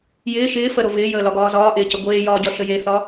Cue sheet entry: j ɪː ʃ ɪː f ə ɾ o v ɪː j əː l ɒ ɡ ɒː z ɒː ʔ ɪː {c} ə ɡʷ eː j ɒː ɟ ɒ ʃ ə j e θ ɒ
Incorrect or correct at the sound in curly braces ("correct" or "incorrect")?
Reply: correct